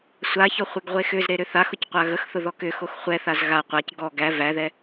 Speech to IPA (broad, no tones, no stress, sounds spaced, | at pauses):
sʷ a ç ɔ χʷ e ɡ ʁʷ e x ʏ z ɾ e ɾ ʏ θ a x ʊ c qʷ a ɣ ə x θ ʊ ð ɔ k ʏ x o x χʷ ɛ θ a z ɣ a qʷ a c ɡ ɔ ɡ æ v æ ð ɛ